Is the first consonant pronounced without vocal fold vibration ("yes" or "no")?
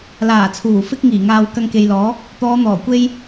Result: no